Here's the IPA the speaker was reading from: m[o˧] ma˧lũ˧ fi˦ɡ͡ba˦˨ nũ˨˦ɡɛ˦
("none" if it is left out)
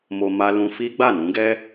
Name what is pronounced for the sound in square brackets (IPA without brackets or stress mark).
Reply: o˧